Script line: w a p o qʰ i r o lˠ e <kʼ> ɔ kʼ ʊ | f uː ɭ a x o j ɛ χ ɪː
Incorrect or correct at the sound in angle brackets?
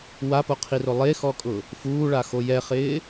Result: incorrect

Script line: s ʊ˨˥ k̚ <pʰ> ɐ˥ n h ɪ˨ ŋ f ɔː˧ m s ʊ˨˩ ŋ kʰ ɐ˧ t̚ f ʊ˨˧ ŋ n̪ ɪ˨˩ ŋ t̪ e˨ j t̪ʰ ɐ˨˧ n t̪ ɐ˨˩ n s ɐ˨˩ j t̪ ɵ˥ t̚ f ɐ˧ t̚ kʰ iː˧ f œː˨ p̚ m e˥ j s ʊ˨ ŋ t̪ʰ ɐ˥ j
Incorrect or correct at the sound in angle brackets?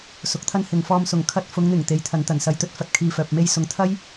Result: incorrect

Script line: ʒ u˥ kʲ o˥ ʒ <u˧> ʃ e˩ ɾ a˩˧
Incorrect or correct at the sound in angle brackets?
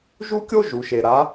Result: incorrect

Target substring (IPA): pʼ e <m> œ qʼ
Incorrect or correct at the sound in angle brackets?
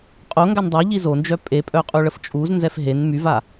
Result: incorrect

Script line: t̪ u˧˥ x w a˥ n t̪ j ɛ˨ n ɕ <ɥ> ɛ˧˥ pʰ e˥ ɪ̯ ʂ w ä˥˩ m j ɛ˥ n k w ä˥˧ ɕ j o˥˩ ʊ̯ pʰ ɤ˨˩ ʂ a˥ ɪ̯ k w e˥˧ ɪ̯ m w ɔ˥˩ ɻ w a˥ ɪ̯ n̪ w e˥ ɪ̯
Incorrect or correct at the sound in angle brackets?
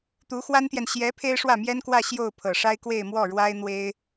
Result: incorrect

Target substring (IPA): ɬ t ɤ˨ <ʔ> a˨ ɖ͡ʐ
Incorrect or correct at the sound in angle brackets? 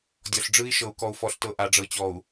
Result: correct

